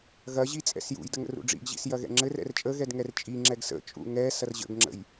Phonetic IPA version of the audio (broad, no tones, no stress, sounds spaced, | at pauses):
ɣ ɐ ʑ i t͡sʼ ɛ̰ s j ṵ j d ə ŋ ə̰ r ṵ ɖ͡ʐ ḭ ɡ ʑ ḭ s j ɐ ɣ ɛ̰ ŋ͡ǁ ɘ r ɛ̰ r t͡ʃʼ ə ɣ ɛ d ŋ ɛ r t͡ʃʼ i ŋ͡ǁ ɛ ɡ s ə̰ t͡ʃʼ ṵ ŋ ɛ s ɐ r ʑ ə̰ ɡ ŋ͡ǁ ə̰ j